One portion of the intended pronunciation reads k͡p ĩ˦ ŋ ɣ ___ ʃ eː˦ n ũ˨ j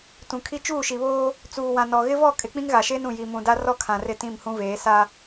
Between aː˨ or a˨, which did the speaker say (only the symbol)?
a˨